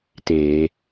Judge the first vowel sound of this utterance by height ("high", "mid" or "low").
mid